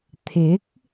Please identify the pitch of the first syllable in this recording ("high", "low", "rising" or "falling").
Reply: rising